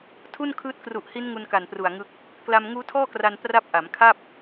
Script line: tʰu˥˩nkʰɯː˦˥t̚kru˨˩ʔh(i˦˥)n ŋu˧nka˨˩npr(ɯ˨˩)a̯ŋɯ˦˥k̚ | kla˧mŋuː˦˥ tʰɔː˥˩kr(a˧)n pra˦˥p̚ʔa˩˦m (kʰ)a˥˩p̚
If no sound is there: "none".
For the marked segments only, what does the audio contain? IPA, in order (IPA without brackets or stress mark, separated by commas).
i˦˥, u˨˩, a˧, kʰ